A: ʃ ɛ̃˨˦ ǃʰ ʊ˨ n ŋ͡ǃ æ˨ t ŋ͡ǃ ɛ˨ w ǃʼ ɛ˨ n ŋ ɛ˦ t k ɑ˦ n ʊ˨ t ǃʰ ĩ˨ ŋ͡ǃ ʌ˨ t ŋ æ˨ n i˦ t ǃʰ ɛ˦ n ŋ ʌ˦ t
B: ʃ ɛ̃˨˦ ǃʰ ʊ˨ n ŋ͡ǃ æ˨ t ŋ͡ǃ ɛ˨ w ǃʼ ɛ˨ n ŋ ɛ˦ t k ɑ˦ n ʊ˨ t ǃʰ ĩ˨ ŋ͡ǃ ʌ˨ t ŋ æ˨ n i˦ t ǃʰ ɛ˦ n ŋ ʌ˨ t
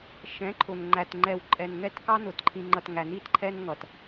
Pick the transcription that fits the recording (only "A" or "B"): B